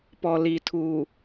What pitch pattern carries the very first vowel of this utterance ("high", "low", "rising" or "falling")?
low